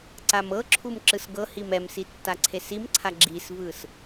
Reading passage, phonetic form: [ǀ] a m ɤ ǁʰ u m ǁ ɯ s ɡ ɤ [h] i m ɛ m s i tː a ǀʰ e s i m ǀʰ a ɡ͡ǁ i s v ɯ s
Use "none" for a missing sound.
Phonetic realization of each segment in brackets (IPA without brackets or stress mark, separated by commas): ǀ, h